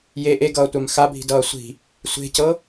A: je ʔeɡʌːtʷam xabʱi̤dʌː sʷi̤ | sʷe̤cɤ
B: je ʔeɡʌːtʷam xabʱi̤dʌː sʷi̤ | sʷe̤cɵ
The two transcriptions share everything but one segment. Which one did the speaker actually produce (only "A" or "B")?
A